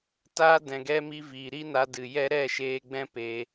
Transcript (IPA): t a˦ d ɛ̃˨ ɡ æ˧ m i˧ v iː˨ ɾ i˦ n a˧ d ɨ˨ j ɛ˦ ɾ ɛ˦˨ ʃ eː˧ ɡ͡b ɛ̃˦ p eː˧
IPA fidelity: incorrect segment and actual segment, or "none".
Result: æ˧ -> ɛ˧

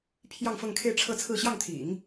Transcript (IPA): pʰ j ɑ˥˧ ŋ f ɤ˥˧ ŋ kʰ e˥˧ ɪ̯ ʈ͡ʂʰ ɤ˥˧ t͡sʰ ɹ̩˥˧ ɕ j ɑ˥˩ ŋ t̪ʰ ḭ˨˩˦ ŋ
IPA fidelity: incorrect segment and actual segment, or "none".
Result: none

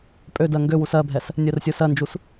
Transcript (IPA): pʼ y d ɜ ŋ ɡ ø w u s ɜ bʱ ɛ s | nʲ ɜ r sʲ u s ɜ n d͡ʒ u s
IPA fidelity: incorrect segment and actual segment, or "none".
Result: y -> ø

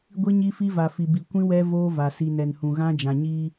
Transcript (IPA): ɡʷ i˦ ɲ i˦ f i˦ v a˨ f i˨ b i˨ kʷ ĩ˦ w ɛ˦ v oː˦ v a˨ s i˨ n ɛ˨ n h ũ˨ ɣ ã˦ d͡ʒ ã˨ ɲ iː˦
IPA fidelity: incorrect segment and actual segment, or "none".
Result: none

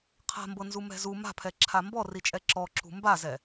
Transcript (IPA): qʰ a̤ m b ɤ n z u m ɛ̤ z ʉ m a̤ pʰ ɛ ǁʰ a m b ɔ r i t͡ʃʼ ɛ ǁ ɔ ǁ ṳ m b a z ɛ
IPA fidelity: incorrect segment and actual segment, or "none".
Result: ʉ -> u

